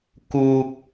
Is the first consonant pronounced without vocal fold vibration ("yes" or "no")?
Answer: yes